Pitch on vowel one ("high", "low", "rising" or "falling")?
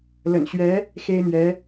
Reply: low